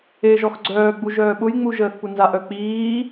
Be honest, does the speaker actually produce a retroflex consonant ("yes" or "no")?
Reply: no